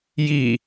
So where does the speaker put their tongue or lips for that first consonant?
palate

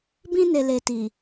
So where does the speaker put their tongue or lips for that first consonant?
lips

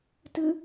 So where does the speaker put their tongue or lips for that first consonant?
tongue tip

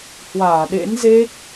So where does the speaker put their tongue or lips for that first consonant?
throat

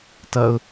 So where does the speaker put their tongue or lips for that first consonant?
tongue tip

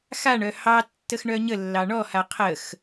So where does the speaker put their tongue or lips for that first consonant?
velum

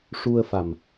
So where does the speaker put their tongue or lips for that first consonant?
retroflex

